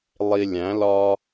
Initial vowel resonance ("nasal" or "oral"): oral